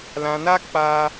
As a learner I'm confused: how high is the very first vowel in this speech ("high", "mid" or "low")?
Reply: low